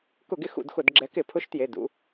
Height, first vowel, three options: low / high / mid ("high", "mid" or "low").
high